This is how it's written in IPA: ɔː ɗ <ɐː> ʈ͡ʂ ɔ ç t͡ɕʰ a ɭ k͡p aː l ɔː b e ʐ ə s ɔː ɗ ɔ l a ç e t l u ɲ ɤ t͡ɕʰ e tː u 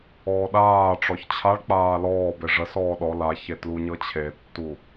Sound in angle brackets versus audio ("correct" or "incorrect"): incorrect